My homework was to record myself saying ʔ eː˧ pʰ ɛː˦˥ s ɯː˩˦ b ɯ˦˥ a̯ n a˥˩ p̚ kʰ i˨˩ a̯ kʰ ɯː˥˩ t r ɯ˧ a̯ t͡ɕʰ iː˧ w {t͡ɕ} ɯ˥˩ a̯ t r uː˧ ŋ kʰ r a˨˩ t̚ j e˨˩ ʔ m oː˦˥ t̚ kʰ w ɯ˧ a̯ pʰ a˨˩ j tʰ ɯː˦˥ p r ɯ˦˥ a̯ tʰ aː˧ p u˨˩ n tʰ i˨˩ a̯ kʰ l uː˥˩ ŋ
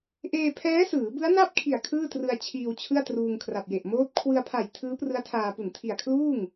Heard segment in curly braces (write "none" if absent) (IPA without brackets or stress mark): t͡ɕʰ